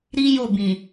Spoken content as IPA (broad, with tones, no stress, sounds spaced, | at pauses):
ɾ i˦ j o˦˨ b ĩ˨